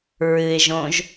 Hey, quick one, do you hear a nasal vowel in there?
yes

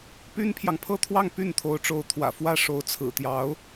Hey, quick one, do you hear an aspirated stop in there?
yes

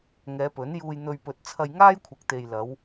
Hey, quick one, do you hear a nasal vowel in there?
no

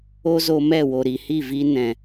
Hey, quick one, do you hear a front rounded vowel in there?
no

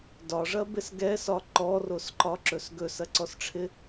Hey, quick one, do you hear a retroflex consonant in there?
yes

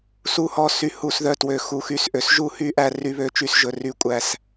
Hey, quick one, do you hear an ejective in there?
yes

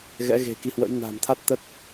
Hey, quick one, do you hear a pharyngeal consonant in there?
no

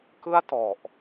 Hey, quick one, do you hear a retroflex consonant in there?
no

